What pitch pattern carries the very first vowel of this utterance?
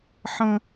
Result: high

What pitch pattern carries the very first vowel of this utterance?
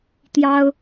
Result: high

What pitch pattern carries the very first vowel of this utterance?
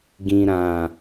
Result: low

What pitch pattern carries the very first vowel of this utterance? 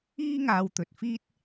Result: high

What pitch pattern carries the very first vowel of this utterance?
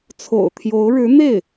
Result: low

